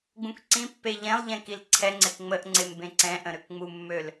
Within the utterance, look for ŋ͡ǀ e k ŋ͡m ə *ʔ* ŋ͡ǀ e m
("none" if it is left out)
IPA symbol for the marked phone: ʔ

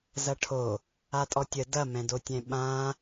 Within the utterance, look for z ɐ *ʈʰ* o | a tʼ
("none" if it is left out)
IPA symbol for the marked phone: ʈʰ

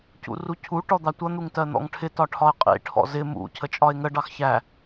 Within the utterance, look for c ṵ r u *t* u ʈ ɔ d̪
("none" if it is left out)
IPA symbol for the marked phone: cʰ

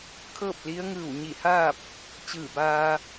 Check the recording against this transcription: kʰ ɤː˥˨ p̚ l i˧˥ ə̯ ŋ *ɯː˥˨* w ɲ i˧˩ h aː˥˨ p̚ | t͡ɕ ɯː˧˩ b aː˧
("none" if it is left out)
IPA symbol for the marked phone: ɯː˧˩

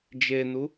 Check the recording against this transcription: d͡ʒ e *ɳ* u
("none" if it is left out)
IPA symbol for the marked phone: n̪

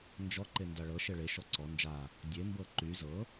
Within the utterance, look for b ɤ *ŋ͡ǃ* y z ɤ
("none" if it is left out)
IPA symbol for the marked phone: ǃ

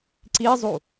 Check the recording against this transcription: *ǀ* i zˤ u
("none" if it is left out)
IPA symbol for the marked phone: ǀ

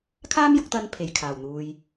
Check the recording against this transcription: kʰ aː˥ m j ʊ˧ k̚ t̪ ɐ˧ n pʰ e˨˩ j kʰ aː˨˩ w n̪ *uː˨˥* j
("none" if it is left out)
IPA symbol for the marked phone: uː˨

